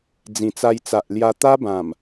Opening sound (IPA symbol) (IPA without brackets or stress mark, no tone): d͡z